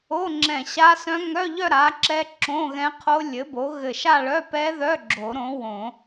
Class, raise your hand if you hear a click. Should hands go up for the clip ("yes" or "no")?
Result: yes